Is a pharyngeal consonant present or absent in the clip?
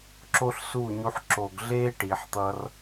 present